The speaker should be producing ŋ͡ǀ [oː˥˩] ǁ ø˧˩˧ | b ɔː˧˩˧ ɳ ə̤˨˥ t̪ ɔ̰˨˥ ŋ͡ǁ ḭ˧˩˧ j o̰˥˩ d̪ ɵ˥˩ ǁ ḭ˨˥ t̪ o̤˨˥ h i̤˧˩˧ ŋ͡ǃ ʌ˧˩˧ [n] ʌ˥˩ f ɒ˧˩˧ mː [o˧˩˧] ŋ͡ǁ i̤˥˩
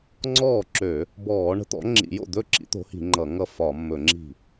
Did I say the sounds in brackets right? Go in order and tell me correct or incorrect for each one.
incorrect: ɔː˥˩, incorrect: ŋ, incorrect: ɵ˧˩˧

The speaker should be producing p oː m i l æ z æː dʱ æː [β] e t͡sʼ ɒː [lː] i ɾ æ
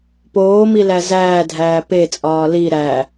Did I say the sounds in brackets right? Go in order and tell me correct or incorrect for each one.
incorrect: p, incorrect: l

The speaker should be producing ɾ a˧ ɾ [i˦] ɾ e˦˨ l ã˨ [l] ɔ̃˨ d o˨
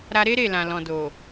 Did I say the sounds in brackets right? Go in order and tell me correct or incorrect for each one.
incorrect: e˦, correct

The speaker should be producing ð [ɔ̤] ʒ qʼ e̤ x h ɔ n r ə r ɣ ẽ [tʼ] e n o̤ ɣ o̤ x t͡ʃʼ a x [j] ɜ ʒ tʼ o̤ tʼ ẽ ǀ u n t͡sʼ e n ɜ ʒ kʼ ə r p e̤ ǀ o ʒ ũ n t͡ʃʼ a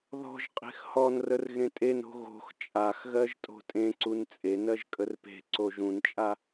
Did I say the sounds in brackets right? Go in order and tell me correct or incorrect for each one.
correct, correct, incorrect: ɣ

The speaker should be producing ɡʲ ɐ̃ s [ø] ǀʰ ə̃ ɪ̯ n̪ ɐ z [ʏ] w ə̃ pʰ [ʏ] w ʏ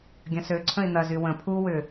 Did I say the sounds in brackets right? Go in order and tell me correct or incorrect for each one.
correct, incorrect: y, incorrect: u

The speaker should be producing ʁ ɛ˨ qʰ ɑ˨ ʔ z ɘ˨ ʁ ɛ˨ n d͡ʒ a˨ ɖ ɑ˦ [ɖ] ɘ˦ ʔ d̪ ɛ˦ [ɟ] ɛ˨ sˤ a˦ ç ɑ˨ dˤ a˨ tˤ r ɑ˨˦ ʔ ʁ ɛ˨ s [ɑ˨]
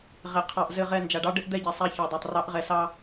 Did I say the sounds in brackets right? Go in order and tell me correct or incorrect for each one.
correct, correct, incorrect: ɑ˦

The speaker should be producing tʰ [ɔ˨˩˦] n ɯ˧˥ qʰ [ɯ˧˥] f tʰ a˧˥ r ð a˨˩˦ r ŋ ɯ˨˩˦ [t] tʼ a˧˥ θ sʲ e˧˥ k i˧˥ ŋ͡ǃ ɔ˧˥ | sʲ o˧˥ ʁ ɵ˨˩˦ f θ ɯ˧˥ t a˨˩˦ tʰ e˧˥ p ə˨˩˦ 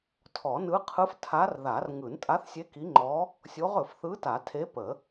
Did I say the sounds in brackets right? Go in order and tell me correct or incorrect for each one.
correct, correct, incorrect: n

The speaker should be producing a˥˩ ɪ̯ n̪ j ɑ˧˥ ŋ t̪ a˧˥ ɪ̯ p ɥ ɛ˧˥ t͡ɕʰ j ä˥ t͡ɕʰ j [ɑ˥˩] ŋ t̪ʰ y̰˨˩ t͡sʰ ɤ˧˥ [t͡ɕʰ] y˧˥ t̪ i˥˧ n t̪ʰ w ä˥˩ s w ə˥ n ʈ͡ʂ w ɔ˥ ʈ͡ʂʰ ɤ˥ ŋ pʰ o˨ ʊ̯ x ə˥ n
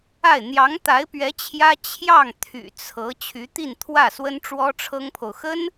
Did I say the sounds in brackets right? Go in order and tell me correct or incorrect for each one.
correct, correct

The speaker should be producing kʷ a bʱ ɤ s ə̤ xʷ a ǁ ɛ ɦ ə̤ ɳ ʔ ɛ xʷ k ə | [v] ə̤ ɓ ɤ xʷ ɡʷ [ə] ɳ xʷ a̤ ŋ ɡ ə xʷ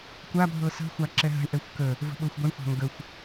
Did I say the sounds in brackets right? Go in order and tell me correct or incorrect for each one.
correct, correct

